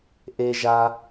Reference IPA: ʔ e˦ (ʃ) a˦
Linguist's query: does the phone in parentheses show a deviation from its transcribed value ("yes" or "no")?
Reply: yes